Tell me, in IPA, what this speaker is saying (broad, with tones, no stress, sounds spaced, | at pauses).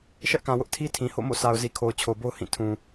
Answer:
ʃ ɛ˦ ʔ k ã˨ w ʊ˦ ʔ tʰ i˦ tʰ ĩ˨ h o̰˦˨ m o̰˦˨ sʰ a˨ ʊ̯ z i˨ kʰ o˨ ʊ̯ t͡ɕʰ o˨ b o˦ ʊ̯ h ĩ˦˨ tʰ ũ˨